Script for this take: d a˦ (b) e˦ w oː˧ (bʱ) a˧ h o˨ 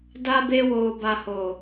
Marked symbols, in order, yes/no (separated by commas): yes, no